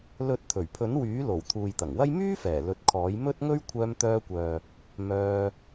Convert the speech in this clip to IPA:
lɵ˨˥t̚ t̪ʰɵ˨˩ɥpʰɵ˨˥nwyː˨˥lo˨˩w t̪ʰuː˨jt̪ɐ˨˩ŋwɐ˥j myː˥ fɛː˨˩lɵ˨˥t̚kʰɔː˨˥j mɵ˥t̚ŋɵ˥ɥ kʷʰœː˧mt̪œː˧kʷœː˨ | mœː˧

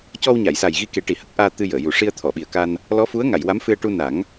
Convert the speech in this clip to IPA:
cɔ˧wɲa˨˩˨jsa˨˩j ɣi˧ke˨˩˦ ʈi˨˩hə˦˥k̚ʔaː˧ t̪ɨ˧jəː˨˩˨ju˨˩ ʂi˧ə̯t̪ʰɔ˨˩˨ɓi˨˩ə̯ka˧n | lɔ˧˥fu˧˥ə̯ŋa˨˩˨j wa˧˥mfɨ˧ə̯ ʈu˧na˨˩˦ŋ

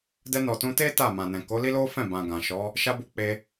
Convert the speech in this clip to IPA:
dɛ˧nɔ˨tũ˧ te˦ ta˦˨mã˨nɛ̃˨ ko˨˦li˦lo˦fɛ̃˦˨ bã˨ɡã˨ ʃɔ˨˦ | ʃa˧bu˧ k͡pe˧

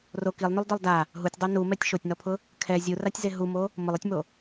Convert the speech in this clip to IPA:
ro kilˠnulˠdɔlˠ da | ɦutʲdˤu numɛtʲ ʃotʲnɔpʰʊ | kʰɛ zʲuratʲze ɦumo | mʊlˠɛtʲmo

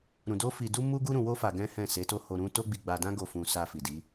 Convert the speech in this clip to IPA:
ɾũ˧ do˦fi˧du˦ mu˦ɡu˦ ɾũ˧wo˦ fa˧ɡɛ̃˦hɛ̃˦˨ se˨˦to˦ ho˧ɾũ˦ to˦ɡ͡bi˧ɡ͡ba˧dã˦ ɡo˦˨ fũ˧ sa˧fi˨ di˨˦

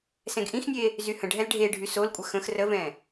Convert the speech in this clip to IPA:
sɛ̃ɡʔĩxnʲe | zyhə̃ɖʱɛl ɖʱe ɖʱysolkʷʼə xə̃x rəvɛ̃

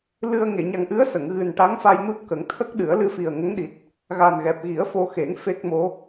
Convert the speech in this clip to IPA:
lɨ˧ə̯ ŋe˨˩˨ɲa˨˩ŋʔɨ˧˥ə̯ sə˨˩˨ŋɣɨ˨˩nʈa˧˥ŋ fa˧j nu˦˥t̚kə˨˩˦ŋ t̪ʰə˦˥k̚ɗɨ˨˩˦ə̯ lɨ˧fi˨˩ə̯ŋə˧˥ŋɗi˨˩t̚ | ɣa˨˩nɣɛ˨˩p̚ ɣi˨˩˦ə̯fo˧xe˨˩˦ŋ fe˦˥k̚mo˧˥

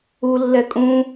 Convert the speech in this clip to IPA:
ulːɛ kʼũ

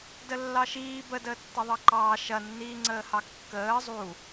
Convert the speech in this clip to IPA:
dəlːɑʃiː bə dəːtːɐðˤɑǃɑː ʃɐnːiːŋ͡ǀəːhɑ kːəː zˤu

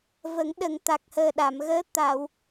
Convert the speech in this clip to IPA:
və˨˩˦ŋɗə˨˩ŋ t̪a˨˩k̚ həː˨˩ɗa˨˩˨mɣəː˧˥ t̪a˨˩˨w

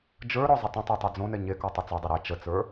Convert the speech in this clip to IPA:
d͡ʒə˞ɾɔ zˤətˤɐ̃tˤə˞ tˤod͡zõnɛ ɲekɔ tˤɛt͡sɔdˤɐ ɾe t͡ʃət͡sə˞

